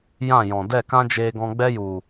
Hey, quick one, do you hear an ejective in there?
no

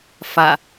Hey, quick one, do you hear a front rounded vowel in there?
no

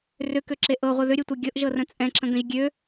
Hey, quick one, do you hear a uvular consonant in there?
yes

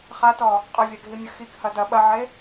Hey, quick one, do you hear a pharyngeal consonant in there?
yes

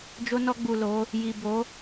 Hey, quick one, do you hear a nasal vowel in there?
no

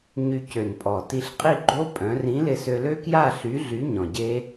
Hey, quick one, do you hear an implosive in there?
no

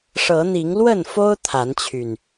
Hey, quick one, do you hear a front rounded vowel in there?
yes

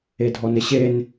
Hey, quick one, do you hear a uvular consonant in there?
no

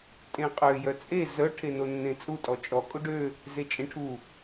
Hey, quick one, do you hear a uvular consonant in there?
yes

